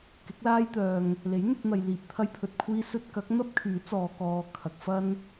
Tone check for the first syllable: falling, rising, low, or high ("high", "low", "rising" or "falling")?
rising